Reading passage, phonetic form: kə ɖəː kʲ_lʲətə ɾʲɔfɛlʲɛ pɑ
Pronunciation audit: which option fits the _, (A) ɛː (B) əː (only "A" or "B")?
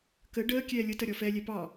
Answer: A